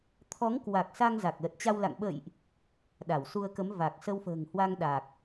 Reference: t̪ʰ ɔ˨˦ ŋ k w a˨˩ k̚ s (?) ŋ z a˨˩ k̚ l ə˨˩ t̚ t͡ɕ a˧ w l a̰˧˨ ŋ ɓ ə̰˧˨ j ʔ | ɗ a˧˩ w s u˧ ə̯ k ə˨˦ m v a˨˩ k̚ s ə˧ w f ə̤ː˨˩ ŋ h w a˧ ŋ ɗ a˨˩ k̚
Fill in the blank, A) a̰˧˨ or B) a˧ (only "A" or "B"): B